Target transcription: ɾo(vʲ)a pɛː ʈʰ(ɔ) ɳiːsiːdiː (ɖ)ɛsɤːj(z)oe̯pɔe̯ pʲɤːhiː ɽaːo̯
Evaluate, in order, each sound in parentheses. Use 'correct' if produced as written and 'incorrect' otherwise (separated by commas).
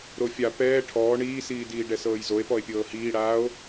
incorrect, incorrect, correct, correct